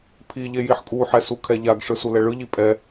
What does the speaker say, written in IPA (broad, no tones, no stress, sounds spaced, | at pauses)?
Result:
pʰ i ʎ e j i ħ kʼ u ħ ɛ s u kʰ ɛ ʎ a ɡ ʂ ɯ s u l ɛ ɭ ɯ ʎ i pʼ ɛ